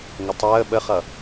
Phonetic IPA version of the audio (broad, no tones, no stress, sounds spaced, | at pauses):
ŋ ə tˤ əː ɓ ə χ ʌ